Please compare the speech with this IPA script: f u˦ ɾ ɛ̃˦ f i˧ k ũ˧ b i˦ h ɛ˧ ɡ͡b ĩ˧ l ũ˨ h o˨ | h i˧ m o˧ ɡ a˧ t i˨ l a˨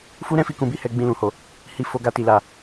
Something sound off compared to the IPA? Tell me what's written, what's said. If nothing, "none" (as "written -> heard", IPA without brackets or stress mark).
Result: m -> f